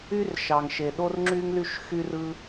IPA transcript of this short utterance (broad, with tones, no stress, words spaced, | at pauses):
y˦rʃɑ˨ŋʃe˨ ɗo˦rŋ͡ǁy˦ŋly˦ʃ xy˦rɯ˦